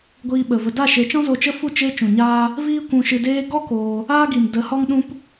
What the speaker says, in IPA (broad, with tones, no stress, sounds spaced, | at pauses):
ɡʷ iː˧ ɓ ə˨ v ə˧ d a˦˨ ʃ e˨˦ t͡ʃ ɔ̃˦ z o˧ t͡ʃ ə˦ f u˦˨ t͡ʃ e˦ t͡ʃ ũ˨ ɲ aː˦ | v iː˦ kʷ ũ˧ ʃ ɨ˧ d eː˦ ɡ ɔ˦ k oː˧ | aː˦ ɡ i˨ m d ə˨˦ h ɔ˦ ŋ ɗ ũ˦ p